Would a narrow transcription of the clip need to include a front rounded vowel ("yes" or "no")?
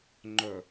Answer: yes